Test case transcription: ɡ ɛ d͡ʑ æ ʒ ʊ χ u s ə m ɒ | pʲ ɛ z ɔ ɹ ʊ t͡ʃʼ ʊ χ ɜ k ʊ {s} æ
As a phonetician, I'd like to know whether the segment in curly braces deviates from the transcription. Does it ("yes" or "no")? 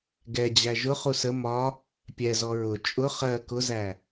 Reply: yes